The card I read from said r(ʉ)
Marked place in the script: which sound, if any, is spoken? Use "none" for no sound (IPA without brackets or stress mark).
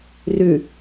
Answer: ʉ